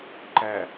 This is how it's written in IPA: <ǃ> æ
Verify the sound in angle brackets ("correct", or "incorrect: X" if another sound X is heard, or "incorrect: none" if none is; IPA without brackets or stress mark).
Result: correct